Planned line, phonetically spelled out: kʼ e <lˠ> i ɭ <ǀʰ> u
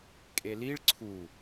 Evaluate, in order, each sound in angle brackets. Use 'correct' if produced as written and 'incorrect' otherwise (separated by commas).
incorrect, correct